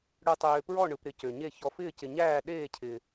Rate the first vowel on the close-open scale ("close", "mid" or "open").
close